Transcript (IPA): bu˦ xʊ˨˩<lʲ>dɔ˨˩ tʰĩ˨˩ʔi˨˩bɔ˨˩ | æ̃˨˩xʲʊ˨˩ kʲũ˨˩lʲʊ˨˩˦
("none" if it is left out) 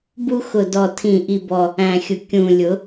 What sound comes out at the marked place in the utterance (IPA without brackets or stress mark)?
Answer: none